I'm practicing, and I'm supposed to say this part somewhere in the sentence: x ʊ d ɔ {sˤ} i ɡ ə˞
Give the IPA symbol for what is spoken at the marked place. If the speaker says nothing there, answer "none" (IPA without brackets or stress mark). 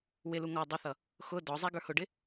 zˤ